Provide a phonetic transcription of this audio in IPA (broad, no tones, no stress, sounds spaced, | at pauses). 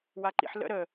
w a ǃ ḭ ħ l ə̰ ɾ ə